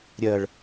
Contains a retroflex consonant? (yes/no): yes